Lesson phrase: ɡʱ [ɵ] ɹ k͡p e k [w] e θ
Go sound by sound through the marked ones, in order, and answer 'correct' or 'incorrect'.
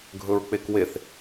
correct, correct

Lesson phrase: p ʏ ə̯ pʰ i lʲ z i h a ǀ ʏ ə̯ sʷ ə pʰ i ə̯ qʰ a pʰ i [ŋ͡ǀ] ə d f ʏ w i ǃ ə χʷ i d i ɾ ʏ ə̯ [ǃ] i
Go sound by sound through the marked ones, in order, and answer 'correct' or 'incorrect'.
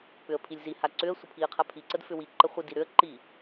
incorrect: ǀ, correct

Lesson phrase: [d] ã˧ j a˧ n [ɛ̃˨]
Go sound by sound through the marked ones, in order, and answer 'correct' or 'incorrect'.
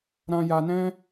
incorrect: ɾ, incorrect: ɛ̃˦

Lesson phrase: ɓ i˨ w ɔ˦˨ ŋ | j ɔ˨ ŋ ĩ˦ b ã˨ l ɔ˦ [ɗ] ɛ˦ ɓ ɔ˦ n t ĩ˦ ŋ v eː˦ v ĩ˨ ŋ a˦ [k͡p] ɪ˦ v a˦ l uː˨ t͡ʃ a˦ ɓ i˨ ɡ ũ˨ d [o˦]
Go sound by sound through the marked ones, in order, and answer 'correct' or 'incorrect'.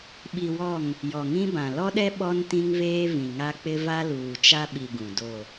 correct, correct, incorrect: o˦˨

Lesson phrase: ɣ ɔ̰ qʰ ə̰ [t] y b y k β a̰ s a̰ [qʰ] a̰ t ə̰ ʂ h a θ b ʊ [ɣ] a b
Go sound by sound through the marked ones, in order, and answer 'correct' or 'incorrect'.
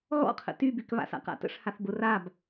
correct, incorrect: q, incorrect: r

